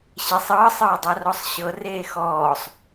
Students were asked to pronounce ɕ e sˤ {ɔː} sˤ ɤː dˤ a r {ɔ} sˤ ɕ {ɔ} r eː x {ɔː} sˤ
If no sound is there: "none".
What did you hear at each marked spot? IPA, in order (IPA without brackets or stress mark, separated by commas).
ɤː, ɔ, ɤ, ɔː